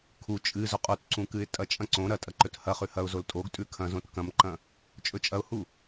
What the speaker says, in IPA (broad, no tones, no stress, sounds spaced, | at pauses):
kʰ u t͡ʃʼ ɨ z ɵ qʼ o t ǀ ũ k ɨ ɪ̯ tʼ ɐ t͡ʃʼ ɐ̃ ǀ õ ɾ ɐ tʼ ɐ ǃ ɵ t h ɐ χ ʉ h ɐ ʊ̯ z o l tʼ o ɡ tʼ ʉ kʰ ɐ̃ z õ t k ɐ̃ m ǃ ɐ̃ | t͡ʃʼ ɵ t͡ʃʼ ɐ ʊ̯ h u